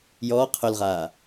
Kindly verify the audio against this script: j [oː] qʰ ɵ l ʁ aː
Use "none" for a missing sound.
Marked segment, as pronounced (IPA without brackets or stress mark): ɔː